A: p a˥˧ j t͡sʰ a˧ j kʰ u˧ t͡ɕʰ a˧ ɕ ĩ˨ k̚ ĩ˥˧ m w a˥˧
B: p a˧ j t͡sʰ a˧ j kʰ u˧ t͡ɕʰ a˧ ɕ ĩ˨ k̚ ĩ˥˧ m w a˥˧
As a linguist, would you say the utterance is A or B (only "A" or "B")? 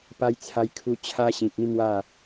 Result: B